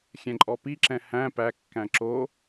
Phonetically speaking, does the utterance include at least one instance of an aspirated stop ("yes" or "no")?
no